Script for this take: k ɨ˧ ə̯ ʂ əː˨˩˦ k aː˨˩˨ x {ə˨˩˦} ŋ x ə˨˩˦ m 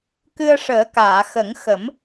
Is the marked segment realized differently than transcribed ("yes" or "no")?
no